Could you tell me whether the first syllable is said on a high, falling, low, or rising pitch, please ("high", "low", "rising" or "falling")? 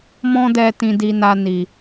high